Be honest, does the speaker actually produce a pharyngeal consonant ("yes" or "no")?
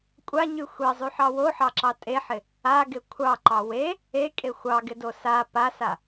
yes